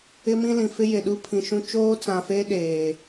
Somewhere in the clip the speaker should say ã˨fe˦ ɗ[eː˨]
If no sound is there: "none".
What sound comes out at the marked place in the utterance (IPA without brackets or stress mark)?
eː˨